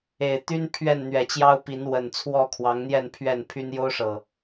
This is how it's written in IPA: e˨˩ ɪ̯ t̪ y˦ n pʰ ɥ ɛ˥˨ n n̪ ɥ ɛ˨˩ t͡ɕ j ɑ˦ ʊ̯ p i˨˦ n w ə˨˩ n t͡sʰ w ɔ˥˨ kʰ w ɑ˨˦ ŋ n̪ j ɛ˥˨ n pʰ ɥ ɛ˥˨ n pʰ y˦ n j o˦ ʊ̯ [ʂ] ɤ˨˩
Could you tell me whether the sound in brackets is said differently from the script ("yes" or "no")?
no